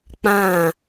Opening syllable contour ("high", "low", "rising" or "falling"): falling